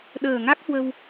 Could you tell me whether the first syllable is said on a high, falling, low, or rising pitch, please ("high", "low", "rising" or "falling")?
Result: low